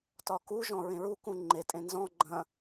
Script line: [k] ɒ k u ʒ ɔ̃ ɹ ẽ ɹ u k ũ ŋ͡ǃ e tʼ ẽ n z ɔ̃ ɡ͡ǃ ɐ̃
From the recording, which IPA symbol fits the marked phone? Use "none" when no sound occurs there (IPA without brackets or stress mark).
t